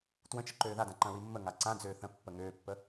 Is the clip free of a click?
no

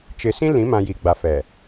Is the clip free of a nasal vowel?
no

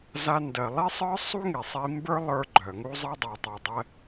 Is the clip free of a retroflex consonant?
yes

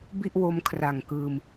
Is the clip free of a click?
yes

